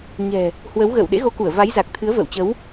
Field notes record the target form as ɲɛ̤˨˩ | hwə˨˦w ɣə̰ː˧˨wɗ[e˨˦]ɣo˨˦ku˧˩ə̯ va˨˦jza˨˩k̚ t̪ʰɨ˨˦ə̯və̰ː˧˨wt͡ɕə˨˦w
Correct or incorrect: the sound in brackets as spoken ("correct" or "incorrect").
incorrect